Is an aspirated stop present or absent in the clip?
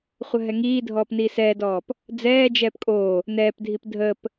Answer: absent